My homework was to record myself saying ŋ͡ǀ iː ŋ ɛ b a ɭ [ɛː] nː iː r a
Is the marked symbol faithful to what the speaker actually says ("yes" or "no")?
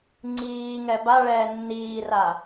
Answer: yes